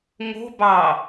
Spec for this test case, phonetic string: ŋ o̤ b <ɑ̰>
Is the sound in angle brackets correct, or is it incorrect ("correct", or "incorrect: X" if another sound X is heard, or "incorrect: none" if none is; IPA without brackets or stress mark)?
incorrect: ɑ